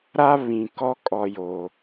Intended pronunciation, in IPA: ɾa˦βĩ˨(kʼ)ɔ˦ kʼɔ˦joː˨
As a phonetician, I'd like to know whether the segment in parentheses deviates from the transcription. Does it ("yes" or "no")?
yes